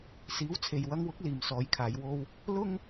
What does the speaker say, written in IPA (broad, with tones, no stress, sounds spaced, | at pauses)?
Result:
s iː˨˥ w t͡sʰ e˨ j w ɐ˧ ŋ w ʊ˨˥ k̚ l iː˨ m s ɔː˨˧ j kʰ aː˨˧ j w o˧ w | l ʊ˥ ŋ